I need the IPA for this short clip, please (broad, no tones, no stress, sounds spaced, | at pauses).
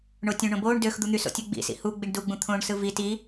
ɳ o tʲ õ ɳ õ b oː ɳ d ø x d̪ u n̪ y s o̰ tʲ u ɡ͡b ḭ s ḭ h u ɡ͡b i ɳ d u ɡ͡b ũ t̪ʰ õː ɳ s ɯ v i t i